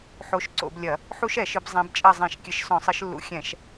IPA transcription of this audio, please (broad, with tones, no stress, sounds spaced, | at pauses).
ħ o˨˦ ʃ ǀ o̰˧˩˧ b lʲ ɐ˧˩˧ | ħ u˦˥ ʃ ɛ˧˩˧ ʃ ɨ˨˦ b zˤ ɛ̃˨˦ b t͡ʃʼ ɐ˦˨ zˤ ɛ̃˧˩˧ ʃ kʲ ɘ˨˦ ʃ s ɔ̃˧˩˧ sˤ ɘ˨˦ ʃ lː ṵ˨˦ xʲ ɛ̃˧˩˧ ʃ